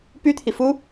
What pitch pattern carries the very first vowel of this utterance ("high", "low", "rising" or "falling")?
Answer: high